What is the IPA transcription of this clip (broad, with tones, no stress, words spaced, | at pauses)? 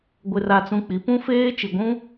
ɡʷɪ˦ra˦t͡sũ˦ k͡pi˨˦pũ˦feː˦ t͡ʃi˨ɡʷũ˦